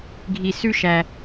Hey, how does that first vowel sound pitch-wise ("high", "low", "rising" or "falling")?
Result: low